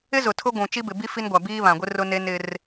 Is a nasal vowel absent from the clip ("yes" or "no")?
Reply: no